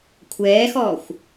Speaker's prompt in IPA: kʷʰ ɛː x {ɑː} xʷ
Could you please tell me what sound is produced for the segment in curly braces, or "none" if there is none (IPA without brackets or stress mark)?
ɔː